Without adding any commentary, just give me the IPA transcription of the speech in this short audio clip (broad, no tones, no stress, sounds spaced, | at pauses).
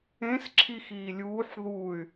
ẽ s ǁʰ i x iː lʲ uː ħ ð u y̯